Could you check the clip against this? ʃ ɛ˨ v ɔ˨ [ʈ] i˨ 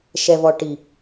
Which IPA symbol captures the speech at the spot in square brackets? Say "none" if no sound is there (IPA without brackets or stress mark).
ʈ